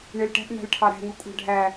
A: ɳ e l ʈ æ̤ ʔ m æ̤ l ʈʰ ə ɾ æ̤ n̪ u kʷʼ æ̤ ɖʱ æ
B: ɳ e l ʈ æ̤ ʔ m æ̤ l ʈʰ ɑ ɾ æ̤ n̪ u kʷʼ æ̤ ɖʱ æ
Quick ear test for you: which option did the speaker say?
B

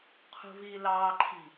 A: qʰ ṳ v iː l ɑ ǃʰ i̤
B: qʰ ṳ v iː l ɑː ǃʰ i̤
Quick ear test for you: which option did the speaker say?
B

